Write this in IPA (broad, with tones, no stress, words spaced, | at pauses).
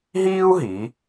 ɦiː˥u̯ɦi˩˧